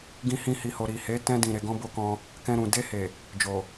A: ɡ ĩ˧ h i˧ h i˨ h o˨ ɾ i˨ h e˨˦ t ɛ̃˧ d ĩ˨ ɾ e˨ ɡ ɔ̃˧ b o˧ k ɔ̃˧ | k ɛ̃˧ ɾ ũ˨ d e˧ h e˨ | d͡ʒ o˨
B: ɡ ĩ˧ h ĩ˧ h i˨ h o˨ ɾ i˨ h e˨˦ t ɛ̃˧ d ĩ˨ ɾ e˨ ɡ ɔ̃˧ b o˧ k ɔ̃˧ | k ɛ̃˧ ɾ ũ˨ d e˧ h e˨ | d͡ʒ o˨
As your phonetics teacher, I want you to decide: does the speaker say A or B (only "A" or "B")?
B